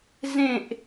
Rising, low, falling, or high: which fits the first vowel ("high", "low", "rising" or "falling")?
falling